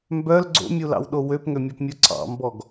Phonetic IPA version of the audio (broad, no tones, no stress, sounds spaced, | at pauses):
m b œ l ɡ͡ǀ o̰ mʲ u l ɑ̰ w ɗ o w ø p ŋ ø mʲ ɔ p mʲ u ǀʰ ɑ̰ m b ɔ ɡ